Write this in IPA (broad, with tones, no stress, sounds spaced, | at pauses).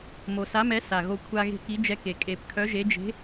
m o˨˩ s a˨˥ m ɛ˨˥ s a˨˩ ɣ o˧ kʷʰ a˧ ɣ e̤˧ k i˨˥ d͡ʒ ɛ˧ k e˨˩ kʼ e˨˩ p kʰ œ˨˥ ʒ e˨˥ d͡ʒ e̤˨˥